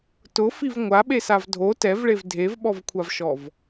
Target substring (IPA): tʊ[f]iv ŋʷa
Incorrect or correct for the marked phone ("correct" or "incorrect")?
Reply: correct